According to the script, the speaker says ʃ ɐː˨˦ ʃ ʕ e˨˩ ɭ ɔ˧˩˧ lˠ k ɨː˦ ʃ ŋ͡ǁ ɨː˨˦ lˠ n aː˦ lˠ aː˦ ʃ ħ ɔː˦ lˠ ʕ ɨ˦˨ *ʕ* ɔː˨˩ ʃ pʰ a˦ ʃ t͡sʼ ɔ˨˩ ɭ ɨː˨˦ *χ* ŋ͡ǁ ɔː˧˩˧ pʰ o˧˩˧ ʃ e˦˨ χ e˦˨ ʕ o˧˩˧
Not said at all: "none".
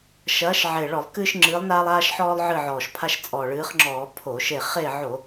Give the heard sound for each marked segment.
ʕ, χ

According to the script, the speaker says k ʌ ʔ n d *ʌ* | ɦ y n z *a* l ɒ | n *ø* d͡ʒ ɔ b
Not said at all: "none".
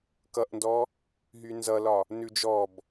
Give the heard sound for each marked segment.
ɔ, ʌ, ʉ

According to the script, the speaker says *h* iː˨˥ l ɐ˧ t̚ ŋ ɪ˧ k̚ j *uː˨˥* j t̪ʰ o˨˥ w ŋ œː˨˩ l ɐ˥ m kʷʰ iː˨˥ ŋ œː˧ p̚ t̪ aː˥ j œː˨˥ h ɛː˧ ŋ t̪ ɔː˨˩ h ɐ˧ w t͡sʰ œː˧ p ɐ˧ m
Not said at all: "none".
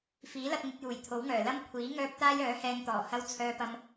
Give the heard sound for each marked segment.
f, uː˨˩

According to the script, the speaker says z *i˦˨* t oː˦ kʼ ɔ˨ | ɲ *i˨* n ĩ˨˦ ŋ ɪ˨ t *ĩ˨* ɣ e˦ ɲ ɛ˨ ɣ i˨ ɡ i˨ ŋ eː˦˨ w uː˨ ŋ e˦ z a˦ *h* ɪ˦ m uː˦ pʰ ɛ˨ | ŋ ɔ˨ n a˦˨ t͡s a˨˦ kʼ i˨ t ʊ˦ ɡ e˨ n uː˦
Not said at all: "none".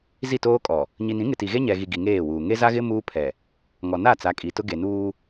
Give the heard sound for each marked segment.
i˦˨, i˨, i˨, ɣ

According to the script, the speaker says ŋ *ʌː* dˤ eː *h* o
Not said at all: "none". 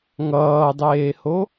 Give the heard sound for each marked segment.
ʌː, h

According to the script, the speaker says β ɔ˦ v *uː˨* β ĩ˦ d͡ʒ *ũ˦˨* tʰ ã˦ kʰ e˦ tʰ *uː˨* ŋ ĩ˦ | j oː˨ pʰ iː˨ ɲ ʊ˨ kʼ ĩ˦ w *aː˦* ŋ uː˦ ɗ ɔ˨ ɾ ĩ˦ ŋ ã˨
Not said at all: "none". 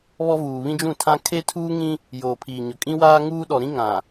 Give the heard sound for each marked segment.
uː˨, ũ˦˨, uː˦, aː˦

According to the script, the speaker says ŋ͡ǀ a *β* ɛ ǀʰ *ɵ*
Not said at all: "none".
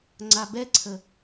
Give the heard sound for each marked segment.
b, ə

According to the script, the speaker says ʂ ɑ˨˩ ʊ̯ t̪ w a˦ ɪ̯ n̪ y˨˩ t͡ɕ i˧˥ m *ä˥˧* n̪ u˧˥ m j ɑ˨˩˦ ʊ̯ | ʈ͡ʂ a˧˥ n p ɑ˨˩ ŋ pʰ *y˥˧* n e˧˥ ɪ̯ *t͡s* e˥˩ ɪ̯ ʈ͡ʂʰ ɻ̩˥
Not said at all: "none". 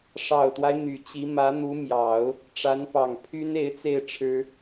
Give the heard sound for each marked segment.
ä˧˥, y˥, t͡s

